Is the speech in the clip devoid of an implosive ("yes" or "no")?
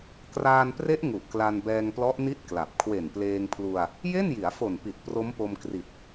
yes